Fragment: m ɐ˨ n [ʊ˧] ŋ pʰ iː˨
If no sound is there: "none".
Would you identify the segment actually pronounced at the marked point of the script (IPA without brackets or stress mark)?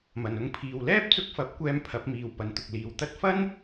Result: ʊ˧